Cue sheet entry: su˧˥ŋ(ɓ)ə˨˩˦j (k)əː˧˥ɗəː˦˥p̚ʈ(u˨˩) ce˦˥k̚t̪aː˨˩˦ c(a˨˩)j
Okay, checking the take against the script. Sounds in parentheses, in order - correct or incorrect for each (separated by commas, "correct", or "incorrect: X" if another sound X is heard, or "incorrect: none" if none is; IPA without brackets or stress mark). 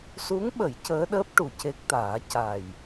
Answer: correct, incorrect: c, correct, correct